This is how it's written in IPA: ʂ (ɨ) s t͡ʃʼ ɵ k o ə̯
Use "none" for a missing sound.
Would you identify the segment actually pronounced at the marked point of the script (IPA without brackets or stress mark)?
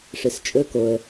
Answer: ɨ